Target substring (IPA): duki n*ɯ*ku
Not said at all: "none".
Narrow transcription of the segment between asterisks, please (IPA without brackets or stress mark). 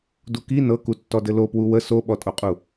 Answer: ɤ